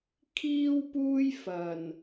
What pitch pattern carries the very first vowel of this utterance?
high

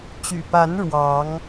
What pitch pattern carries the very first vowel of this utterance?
low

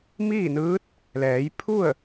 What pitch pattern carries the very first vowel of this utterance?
falling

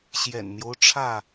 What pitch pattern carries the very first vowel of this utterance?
low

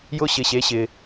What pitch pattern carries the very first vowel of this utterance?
high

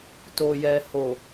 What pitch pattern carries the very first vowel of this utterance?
low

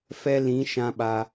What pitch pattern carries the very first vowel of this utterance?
high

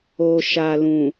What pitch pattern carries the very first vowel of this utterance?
low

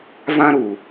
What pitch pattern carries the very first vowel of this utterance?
high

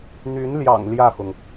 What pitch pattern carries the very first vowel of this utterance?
rising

